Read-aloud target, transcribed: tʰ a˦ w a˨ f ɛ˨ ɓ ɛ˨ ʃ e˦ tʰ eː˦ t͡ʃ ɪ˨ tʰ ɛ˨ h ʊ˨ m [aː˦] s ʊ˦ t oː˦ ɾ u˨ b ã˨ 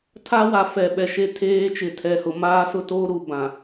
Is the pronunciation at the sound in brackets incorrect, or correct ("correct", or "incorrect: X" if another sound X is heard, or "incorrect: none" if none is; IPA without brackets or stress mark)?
correct